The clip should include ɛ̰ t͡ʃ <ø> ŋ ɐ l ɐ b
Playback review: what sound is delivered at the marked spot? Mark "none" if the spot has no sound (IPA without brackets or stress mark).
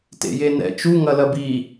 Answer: u